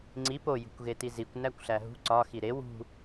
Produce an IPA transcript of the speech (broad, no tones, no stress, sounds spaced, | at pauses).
ŋ͡ǀ i p o j ṳ kʷ ɣ e t i z i kʷ n æ kʷ ɬ æ ɦ ṳ ǀ ɒ x i ɾ e w ṳ